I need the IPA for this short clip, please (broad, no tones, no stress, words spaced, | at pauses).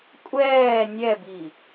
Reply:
kʷʼɛː nʲɛbi